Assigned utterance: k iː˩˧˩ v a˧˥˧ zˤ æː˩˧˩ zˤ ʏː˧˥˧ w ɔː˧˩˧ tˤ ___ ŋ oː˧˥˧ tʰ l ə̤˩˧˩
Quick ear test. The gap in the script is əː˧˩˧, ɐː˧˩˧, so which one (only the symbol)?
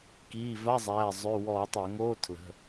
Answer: əː˧˩˧